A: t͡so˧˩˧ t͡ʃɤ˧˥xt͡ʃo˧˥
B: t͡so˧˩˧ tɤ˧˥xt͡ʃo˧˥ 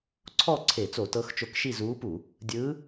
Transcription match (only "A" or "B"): B